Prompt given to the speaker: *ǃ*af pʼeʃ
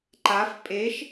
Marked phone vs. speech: correct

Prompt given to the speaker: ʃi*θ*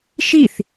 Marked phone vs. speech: correct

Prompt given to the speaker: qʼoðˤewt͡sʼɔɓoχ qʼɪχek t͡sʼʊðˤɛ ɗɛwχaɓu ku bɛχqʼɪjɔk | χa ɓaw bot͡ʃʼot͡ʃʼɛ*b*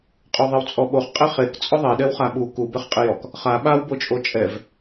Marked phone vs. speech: incorrect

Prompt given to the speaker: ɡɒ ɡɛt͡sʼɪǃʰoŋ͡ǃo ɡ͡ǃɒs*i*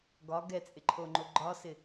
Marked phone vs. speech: incorrect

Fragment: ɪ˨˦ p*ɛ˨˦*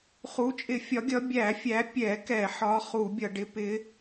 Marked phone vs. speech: incorrect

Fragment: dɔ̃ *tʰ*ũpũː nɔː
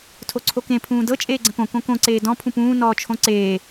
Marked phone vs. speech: incorrect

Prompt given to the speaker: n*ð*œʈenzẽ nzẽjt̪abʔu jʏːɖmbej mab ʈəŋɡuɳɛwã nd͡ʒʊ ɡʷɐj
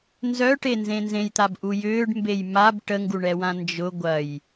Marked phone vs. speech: incorrect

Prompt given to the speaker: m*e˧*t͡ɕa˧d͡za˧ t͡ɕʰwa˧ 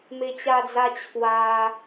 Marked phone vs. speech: correct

